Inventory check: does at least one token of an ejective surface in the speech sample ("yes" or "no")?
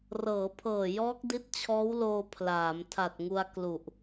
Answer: no